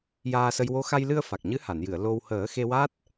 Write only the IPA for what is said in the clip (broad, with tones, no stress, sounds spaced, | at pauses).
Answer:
j aː˧ s ə˧ j w o˧˥ x a˧ j l ɨ˧ ə̯ f a˨˩ k̚ ɲ ɨ˧˥ h a˨˩˨ n j ɨ˨˩˨ ə̯ l o˧ w h əː˨˩˦ x e˧ w a˦˥ t̚